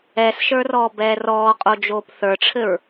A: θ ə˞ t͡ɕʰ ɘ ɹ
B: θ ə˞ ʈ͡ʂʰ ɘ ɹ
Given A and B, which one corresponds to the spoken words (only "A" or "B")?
B